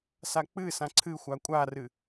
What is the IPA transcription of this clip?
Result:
sak͡pɨsã ǀʰɨxʷa kʷʼarɨ

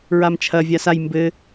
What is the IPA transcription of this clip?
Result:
ɹamt͡ʃʰɐ vʲasaj mbɘ

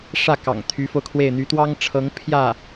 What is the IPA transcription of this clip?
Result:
ʂä˥˩kɑ̰˨˩ŋ t̪ʰy˧˥fo˧ʊ̯kʰwe˥˩ɪ̯ n̪y˧˥t̪wɑ˥ŋʈ͡ʂʰɤ˧˥ŋ pʰjä˥˩

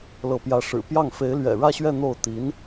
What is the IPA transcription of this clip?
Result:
lɤ˧˥pjä˧˥ʂɻ̩˨˩ pjɑ˥˩ŋ fe˧˥ɪ̯lɥɛ̰˨˩ɻä˥˧ɕɥɛ˥˧ n̪o˥˩ʊ̯ t̪i˧˥n

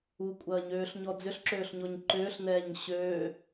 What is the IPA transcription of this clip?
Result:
ukʷʼɐːɲøːɬɲɔ d͡zʏɬǁøːɬɲɔɲ ǃʏːɬnɛːɲ ɕøː

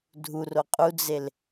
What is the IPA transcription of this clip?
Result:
dʱuro qʼud͡zel

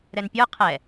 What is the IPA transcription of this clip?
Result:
ɾɛnpʲə˞ qʰɛ

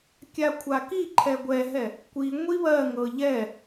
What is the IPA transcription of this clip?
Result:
kʲakʷʰaki ǃʰɛɡʷɛɦɛ | kʷi ŋʷiβɜŋɤ ʎɛ

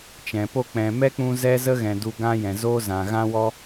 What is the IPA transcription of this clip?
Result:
t͡ʃɛ̃˨po˦ k͡pɛ̃˨mɛ˦k͡pũ˧ zɛ˦zə˦ɣɛ̃˨ du˧ɡã˦jɛ̃˨zoː˦ zã˨ɣã˦wɔ˦

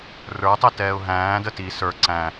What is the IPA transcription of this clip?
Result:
rə˞tˤɪtɛːʊ̯ ɦæ̃ːdə ti sə˞ ǀæ̃

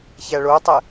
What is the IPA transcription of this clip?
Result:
çæɭotˤɛ

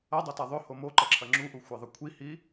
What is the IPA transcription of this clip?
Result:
ɐdˤota ðˤɵho moǃɐǁʰɐ ŋ͡ǁuʔuxʷeðˤɐ kʷʰihi

